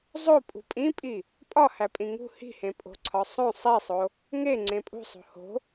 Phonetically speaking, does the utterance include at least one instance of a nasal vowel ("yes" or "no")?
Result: yes